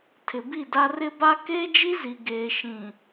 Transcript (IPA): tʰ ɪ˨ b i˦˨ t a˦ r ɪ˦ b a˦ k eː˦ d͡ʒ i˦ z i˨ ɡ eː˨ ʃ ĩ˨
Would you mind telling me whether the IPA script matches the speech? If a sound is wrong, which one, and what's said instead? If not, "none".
t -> d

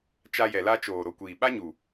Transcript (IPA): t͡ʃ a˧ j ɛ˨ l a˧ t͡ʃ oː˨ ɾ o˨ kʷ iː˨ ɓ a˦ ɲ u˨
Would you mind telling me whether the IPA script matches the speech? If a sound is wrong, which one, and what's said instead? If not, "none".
none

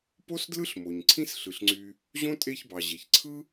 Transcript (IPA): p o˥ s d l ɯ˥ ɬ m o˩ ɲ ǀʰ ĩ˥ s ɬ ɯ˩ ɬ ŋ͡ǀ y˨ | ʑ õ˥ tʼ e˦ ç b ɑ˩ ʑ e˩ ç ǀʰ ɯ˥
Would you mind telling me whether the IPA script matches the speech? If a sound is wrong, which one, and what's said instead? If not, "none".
none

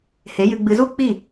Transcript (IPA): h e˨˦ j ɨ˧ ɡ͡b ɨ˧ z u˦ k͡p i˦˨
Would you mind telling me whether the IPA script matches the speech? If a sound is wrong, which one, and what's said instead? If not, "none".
none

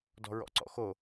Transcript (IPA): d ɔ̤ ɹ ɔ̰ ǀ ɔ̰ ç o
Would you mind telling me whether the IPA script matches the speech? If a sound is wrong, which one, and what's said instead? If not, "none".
ç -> x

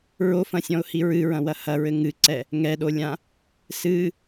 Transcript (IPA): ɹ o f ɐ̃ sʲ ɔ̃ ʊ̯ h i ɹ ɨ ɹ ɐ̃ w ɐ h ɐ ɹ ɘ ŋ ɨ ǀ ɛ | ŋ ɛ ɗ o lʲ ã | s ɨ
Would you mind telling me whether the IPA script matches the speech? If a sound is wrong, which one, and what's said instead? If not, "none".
none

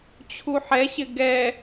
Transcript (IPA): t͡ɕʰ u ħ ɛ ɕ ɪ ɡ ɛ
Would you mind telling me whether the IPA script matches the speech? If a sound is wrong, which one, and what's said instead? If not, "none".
none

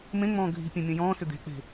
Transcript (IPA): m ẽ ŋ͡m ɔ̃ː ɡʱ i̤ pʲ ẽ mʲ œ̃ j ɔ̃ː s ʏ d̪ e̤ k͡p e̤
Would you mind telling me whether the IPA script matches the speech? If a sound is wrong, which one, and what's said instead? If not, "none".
none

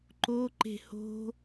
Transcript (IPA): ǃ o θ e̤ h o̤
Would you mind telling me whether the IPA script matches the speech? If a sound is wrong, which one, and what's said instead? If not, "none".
θ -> ǃ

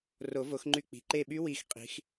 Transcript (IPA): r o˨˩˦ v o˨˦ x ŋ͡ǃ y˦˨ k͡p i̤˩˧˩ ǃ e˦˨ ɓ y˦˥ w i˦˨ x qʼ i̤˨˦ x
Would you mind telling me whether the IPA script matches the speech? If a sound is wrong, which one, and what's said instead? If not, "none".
none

